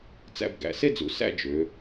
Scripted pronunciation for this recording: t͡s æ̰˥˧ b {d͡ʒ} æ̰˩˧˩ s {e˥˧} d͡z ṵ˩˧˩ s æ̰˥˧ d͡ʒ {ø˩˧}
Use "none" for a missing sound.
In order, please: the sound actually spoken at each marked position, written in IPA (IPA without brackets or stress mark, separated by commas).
ɡ, e˥˧, ø˩˧